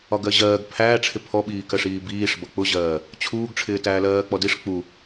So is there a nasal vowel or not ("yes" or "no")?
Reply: no